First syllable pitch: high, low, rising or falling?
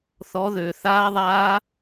rising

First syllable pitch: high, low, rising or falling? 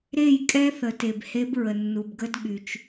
falling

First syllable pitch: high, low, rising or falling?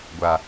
low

